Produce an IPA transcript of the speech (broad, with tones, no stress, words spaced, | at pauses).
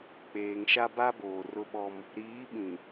k͡peː˨ŋʃa˦ ba˦ boː˨rʊ˦ɓɔ˦m | ɾiː˨˦ɓĩ˨